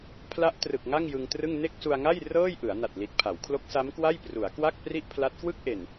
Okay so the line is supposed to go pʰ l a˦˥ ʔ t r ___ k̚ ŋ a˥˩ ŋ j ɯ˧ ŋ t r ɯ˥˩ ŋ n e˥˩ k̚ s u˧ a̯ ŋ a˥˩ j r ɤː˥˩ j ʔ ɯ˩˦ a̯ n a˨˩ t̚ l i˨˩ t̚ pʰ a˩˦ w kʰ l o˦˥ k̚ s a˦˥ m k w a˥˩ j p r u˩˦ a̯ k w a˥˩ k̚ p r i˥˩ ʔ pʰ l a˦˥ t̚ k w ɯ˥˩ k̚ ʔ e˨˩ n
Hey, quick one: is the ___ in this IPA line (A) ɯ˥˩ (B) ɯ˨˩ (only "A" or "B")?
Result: B